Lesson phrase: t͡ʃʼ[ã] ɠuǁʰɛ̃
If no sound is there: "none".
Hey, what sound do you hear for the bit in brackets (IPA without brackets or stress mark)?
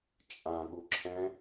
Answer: ã